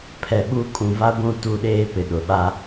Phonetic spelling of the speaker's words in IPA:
pʰ ɛ˨ ɓ u˦˨ kʼ ũ˨ v a˦ ɡʷ ũ˦˨ t u˦˨ ɗ eː˦ p ɪ˨ ɗ ʊ˨ ɓ a˦

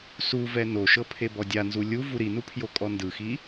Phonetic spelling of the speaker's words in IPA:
s u v ɛ n o ʃ ɤ pʰ e b ɔ dʲ a n z u lʲ u v u ɾ i n u pʰ j o kʼ ɔ n d ɯ x i

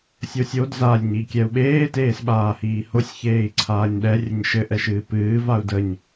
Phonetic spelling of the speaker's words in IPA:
sʲ o sʲ o d z a lʲ ɲ i kʲ ɛ u̯ ɓ eː t eː s ɓ aː h iː h o sʲ ç eː i̯ ǀʰ aː ɲ ɗ ɛ rʲ ə ɲ ʃ ɘ ʔ ɛ ʃ ɨː p ɨː v a u̯ d ə ɲ

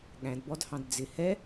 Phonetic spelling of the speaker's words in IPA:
ɠ æ̃ d b ɔ d h ɑ̃ d d͡z ɪ h ɛ

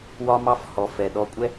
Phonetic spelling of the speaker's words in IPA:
w ɒ˦ m ɑ˦ f h ɔ˨ f ɛ˨ ɗ ɔ˧ kʷʼ ɛ˦

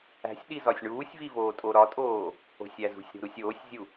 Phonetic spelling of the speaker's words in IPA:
æ̤ sʲ ɗ i z ɒ sʲ ɳ uː sʲ v i v oː tʼ o ɾ ɒ tʼ oː | o̤ sʲ æ z ṳ sʲ ɾ o̤ ɾ u sʲ oː sʲ zʲ u

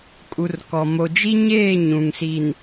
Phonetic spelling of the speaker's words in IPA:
kʼ u˨ r k ɔ˨ m o˨ d͡ʒ i˦ ɲ eː˦˨ ɲ ũ˨ ŋ s i˨ n

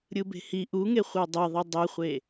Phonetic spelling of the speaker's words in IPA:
ɾʲ ɯ b e̤ h i ʔ u ŋ e χʷ a dˤ e ðˤ e dˤ ɛ χʷ e

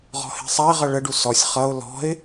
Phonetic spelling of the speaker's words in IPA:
ʁ ɔ̤ h e̤ sˤ a ɪ̯ ʁ ʌ ɭ ə ɖ u s ɔ sʲ χ ʌ ʊ̯ l ɔ̤ ɪ̯

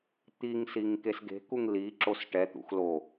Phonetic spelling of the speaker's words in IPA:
t̪ i ŋ s i ŋ k e s ɡ e̤ k u ŋ l i ǁ o s ʈ ɛ t̪ ṵ x l o

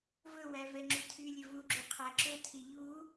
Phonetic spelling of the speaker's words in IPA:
v ɵ w æ v ɛ ŋ͡ǁ y tʰ y lʲ ɵ v u ɡ͡ǁ ʉ qʰ æ ǁ ɵ tʰ i ʎ u

